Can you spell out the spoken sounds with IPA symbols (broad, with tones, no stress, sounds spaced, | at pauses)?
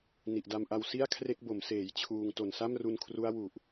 n i˨˩ ʔ d a˧ m ʔ a˧ w s i˥˩ a̯ kʰ r e˥˩ k̚ b o˩˦ m s eː˩˦ j t͡ɕʰ uː˧ ŋ t o˨˩ n s a˥˩ m r u˧ n kʰ r u˦˥ a̯ w u˨˩ ʔ